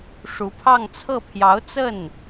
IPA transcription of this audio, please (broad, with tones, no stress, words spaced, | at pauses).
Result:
ʂu˧˥pʰɑ˥˧ŋt͡sʰɤ˥˩ pʰjɑ˧˥ʊ̯t͡sə˥˩n